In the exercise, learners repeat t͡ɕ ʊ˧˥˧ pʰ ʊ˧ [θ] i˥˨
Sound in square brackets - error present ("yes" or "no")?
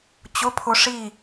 yes